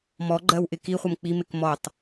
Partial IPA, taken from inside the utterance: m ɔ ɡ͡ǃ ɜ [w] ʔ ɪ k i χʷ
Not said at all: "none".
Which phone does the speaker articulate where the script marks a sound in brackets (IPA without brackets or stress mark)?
w